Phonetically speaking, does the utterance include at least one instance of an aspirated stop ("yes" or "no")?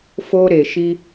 no